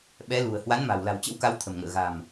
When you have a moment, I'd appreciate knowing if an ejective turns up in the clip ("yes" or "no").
no